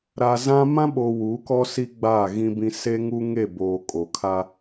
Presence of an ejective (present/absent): present